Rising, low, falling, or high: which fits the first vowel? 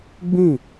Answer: falling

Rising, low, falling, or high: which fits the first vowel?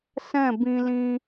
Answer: falling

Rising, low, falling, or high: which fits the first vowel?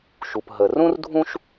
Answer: low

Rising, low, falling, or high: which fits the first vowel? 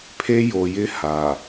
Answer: high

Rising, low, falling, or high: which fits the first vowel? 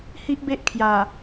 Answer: high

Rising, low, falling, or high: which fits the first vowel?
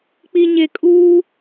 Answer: low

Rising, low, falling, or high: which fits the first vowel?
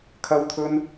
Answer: high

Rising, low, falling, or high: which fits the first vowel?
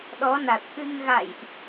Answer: rising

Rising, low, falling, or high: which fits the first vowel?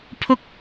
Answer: high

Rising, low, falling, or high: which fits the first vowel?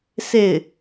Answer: falling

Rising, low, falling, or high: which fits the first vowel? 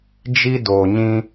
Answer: high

